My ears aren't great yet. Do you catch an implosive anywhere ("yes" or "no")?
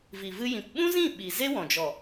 yes